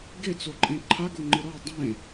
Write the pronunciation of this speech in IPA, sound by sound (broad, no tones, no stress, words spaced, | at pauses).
ɡet͡soǃʼẽ ǃʰaɡoŋ͡ǃɨ ɾɔ dˤẽ